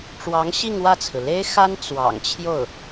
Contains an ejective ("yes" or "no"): no